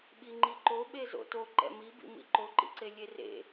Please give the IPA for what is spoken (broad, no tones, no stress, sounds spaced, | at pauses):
ɓ i ŋ͡ǃ i ǃ o ɓ e z o̰ t o ǃ ɛ̰ m i b ḭ m ḭ ǃ o ǃ ḭ ǀ e lʲ e r ḛ